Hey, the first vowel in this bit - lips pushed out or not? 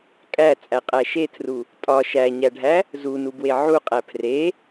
no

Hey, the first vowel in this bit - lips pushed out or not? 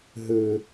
no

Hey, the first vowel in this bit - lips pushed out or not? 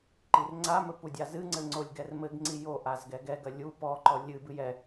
no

